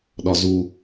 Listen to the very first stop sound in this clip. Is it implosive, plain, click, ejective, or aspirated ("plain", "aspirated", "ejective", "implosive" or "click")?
implosive